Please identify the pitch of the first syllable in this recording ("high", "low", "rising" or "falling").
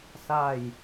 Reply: falling